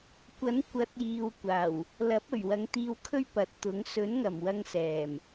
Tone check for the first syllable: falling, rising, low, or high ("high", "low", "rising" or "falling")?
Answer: rising